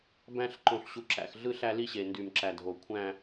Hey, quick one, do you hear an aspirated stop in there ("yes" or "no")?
yes